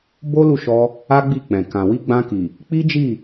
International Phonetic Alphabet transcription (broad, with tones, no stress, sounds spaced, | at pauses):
b o˦ l u˦˨ ʃ ɔ˧ | a˦ ɡ͡b i˦˨ k͡p ɛ̃˨ k ã˨ w i˧ ɡ͡b ã˧ k i˨ | k͡p i˦ d͡ʒ i˦˨